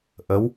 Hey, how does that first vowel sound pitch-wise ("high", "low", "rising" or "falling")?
rising